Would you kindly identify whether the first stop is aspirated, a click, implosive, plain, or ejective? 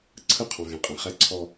click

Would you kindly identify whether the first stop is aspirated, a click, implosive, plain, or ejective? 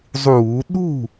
implosive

